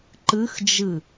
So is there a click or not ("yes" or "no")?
yes